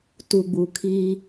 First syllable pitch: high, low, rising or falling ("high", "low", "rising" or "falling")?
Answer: low